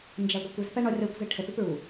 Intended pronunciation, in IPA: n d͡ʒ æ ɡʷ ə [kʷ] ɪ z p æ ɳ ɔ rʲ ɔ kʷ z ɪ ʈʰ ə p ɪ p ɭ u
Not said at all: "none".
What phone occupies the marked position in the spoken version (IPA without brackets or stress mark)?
kʷ